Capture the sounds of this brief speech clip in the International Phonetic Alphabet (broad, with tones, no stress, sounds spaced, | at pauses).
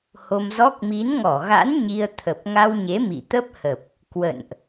h o˧ m z ɔ˦˥ k̚ m i˨˦ n ŋ ɔ˧˩ ɣ a̰˧˥ n ɲ i˧ ə̯ t̪ʰ ə˨˩ p̚ ŋ a˧ w ɲ e˨˦ m ḭ˧˨ t̪ ə˦˥ p̚ h ə˨˩ p̚ | k w ə̰˧˨ n ʔ